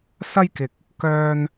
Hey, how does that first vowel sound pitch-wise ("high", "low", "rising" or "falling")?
high